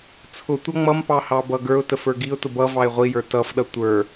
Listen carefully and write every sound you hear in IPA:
t͡sʰʊtʷʌ ŋ͡mʌmpɑ hɑbʌɡə˞ʊ̯təf ə˞ɡiʊ̯tʊ bʌ vɑɪ̯ʁʷijə˞ tʌfɗʌ tʷə˞

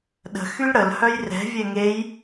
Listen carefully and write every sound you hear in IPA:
ɗə̤ xylɽəl hœjrɛ̤ vʲɛŋej

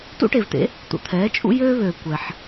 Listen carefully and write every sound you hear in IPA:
tṵ˥ʈe˩vt̪ḛ˩˥ | t̪ṵ˩t̪ʰɛː˩˥ t͡ʃʼṵ˥ jøː˥βøː˩ kʷɛ˩ħ

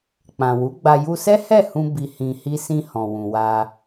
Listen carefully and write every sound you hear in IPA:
k͡pã˨wu˨˦ɡ͡ba˧ ju˧sɛ˦hɛ˦˨ hũ˧ bi˧hĩ˧hi˦ sĩ˧ hɔ̃˨wũ˨wa˧

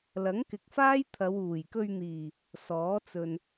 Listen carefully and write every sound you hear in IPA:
lɐ˨˥ŋkɪ˨˥k̚faː˥j t̪ʰɐ˨˧wuː˨˩jkɵ˧ɥn̪iː˨˩ | sɔː˨˥t͡sɵ˨n

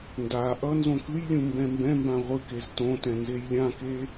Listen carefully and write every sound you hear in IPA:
nda ʔʌnzõ kɯjlʲũ mbɛ̃mbɛ̃mbã ʁʷɯkez tõtɛ̃ nzejlʲãke

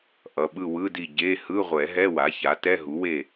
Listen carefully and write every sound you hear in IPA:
ʔʌ˩˧˩ɓɯ˦˨wɯ˧˥˧di˦˨ ɟe˧˥˧ hɯ˧˥˧ʁʷɛ˨˩˦ɦɛ˧˥˧ wa˩˥ça˩˥ tɛ˧˥˧ɦu˩˥we˦˨

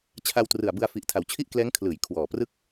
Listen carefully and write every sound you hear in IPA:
t͡ɕʰa˧wtrɯ˨˩a̯bɯ˧a̯ fi˨˩ʔtʰa˩˦wt͡ɕʰi˥˩ʔklɛː˦˥ŋ kʰlɯː˩˦j kʰwɔː˨˩prɯ˥˩k̚

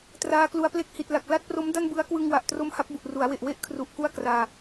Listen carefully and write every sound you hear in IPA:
traː˧klu˧a̯ple˥˩k̚ hi˨˩t̚la˨˩k̚ la˥˩t̚pro˦˥mda˥˩n bɯ˦˥a̯ kwɯ˧ŋwa˨˩ʔ tro˦˥mha˦˥p̚ bu˨˩ʔru˩˦a̯we˨˩ʔ we˥˩ʔkʰru˨˩ʔ ku˥˩a̯kraː˧

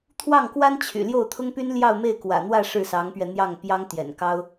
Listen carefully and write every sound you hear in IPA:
t̪ʰwɑ˥˩ŋkwa˥n t͡ɕʰy̰˨˩ ljo˥˩ʊ̯t̪ʰʊ˥ŋpy˥n ljɑ˥˧ʊ̯me˥˩ɪ̯kwä̰˨˩n̪wä˥˧ ʂɻ̩˥˩sɑ˧˥ŋpɥɛ˧ n̪jɑ˥˩ŋpjɑ˥ŋ t̪jɛ̰˨˩nkɑ˥ʊ̯

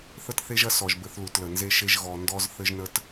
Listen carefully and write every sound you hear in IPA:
θə˦tθe˦ʒɐ˦ sɔ˨ʒ bɘ˦θlu˨tlə˨ nze˦ʃe˦ʒ ɣɔ˨ ndɔ˦z θɘ˦ʒnə˦t

